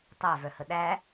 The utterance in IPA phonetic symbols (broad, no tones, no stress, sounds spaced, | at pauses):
tˤ æ v œ h ə ɗ æ